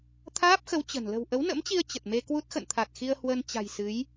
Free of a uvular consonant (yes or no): yes